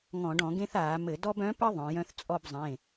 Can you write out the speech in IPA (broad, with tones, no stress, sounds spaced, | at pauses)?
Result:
ŋ ɔ̃˧˩˧ ɖ ɔ̃˧˩˧ ɡ ẽ˦ θ aː˧˩˧ m ɘ˧˩˧ d ɔ˦ b œ̃˨˥ p ɘ˦ ðˤ œ̃˩˧ j œ̃˦˨ θ t͡sʼ ɔ˦˨ b zˤ ẽ˩˧˩